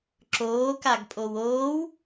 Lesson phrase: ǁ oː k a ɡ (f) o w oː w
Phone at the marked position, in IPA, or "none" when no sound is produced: pʼ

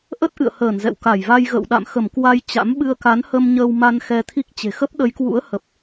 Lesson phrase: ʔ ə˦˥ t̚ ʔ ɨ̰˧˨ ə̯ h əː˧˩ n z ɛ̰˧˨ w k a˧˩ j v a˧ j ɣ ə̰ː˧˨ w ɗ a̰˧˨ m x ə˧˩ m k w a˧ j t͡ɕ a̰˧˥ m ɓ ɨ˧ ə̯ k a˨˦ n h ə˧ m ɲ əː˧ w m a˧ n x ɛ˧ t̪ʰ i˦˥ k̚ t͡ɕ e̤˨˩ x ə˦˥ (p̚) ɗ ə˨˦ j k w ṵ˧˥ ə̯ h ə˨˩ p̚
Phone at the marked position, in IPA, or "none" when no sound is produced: p̚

